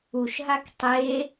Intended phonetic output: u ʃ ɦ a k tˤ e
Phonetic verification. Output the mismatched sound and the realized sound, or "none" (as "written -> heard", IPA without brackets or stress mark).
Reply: none